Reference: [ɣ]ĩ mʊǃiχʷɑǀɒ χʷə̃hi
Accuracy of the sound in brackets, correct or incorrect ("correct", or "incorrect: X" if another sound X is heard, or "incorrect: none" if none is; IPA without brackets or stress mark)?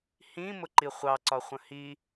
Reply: incorrect: h